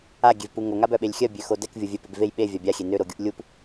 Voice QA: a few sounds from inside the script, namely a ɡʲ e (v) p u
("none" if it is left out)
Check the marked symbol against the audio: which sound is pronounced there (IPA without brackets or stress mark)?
v